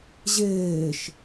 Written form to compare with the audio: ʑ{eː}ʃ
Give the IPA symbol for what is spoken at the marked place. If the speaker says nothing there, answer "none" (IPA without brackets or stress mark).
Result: eː